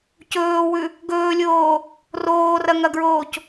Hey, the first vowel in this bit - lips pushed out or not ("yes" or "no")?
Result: yes